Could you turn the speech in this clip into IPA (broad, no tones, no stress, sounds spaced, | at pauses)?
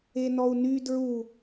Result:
e n ɔ u̯ n y d ɹ u